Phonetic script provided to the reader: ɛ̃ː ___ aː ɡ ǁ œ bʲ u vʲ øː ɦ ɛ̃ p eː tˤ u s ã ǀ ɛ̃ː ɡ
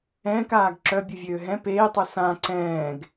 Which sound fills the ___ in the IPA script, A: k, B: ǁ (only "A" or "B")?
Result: A